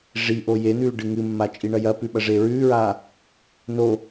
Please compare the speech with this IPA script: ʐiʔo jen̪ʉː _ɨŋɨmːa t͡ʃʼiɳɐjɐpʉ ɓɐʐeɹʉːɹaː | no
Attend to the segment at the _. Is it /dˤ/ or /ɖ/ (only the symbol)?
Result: ɖ